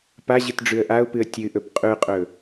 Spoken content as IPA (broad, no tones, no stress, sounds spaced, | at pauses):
p a ʑ ɨ t ɖ͡ʐ ʉ ə̯ ʔ a ʊ̯ p ɨ ə̯ tʲ ɨ ʔ ɵ p qʼ ʉ qʼ ɵ